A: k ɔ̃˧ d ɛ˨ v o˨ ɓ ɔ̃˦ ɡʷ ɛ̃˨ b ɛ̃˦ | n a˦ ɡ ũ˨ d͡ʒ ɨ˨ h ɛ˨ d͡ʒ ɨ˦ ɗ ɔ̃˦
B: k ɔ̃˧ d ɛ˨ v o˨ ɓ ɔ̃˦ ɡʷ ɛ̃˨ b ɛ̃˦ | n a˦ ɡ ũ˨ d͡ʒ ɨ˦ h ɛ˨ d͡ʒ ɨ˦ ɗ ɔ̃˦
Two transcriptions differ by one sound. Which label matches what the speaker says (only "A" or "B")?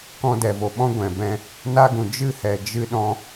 B